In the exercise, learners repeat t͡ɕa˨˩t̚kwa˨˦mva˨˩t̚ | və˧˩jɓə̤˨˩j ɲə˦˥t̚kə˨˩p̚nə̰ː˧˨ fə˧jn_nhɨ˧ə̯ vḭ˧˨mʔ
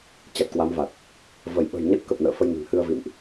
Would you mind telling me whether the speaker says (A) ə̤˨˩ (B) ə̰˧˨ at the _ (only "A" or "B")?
A